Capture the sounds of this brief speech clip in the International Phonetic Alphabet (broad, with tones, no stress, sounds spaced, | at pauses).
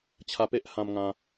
t͡ɕʰ a˧ p e˦ ʔ h ã˧ m ŋ ã˧